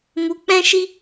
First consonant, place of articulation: labial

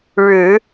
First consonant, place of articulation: retroflex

